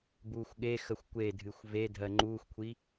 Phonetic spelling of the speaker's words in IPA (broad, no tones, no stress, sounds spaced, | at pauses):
b uː xʷ ɠ e x ə xʷ kʷ e dʱ ɨ xʷ v e dʱ ɜ ŋ͡ǃ uː xʷ kʷʰ i